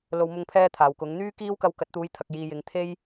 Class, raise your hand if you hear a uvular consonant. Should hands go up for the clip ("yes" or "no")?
no